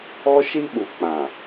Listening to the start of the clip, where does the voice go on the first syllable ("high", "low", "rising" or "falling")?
high